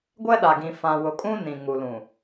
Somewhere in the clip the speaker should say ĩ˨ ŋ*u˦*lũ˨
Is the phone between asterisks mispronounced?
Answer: yes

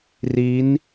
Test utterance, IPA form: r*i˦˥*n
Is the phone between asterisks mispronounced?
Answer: no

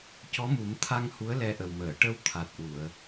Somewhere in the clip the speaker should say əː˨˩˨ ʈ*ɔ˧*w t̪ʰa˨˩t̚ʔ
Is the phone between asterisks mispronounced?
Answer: yes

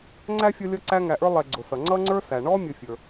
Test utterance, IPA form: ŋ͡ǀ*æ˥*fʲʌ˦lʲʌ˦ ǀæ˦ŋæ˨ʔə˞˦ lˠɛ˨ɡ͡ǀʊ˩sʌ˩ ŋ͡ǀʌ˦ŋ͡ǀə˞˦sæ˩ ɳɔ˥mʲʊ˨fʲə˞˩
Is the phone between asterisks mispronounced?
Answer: no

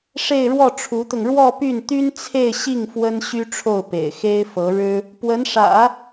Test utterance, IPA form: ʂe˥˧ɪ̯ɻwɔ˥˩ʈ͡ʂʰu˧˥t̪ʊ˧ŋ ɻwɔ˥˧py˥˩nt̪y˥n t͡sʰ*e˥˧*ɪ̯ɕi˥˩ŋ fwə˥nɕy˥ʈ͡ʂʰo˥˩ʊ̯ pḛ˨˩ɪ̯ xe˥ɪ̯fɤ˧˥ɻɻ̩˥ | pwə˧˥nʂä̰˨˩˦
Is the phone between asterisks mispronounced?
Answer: no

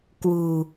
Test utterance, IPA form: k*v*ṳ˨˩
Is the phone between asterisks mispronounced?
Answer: yes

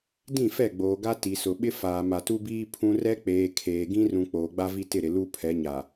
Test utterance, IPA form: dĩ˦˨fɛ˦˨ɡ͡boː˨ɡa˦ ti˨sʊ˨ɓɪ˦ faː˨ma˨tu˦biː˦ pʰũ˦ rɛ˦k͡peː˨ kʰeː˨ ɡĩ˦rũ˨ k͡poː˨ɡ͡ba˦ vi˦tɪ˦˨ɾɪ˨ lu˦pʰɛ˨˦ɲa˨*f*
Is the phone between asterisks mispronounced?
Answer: yes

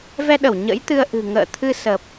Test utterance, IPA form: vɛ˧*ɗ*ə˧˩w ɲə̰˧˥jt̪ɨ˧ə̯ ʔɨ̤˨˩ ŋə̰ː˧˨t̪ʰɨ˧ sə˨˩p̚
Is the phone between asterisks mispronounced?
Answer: no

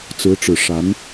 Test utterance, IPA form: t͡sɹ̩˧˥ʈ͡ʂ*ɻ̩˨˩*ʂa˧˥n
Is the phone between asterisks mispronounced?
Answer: no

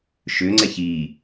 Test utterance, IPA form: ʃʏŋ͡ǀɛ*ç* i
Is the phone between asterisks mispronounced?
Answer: no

